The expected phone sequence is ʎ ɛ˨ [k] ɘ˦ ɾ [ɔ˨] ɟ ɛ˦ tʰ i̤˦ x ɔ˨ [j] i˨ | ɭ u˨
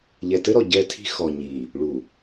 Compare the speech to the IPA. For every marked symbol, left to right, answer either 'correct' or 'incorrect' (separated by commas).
incorrect, correct, incorrect